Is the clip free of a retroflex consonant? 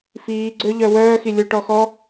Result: no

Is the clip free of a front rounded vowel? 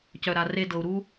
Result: no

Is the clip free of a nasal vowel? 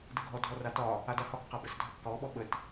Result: yes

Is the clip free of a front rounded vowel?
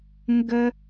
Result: yes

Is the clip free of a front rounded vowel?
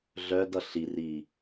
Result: no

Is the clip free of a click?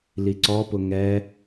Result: no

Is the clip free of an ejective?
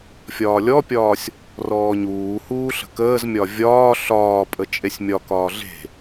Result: no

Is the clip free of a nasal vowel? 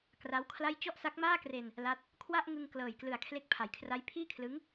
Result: yes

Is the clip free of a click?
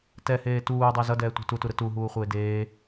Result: yes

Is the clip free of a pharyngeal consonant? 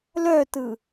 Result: yes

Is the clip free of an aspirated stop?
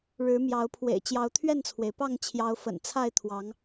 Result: no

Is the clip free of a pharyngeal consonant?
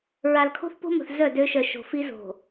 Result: yes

